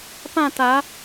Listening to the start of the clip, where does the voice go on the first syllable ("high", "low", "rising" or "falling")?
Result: falling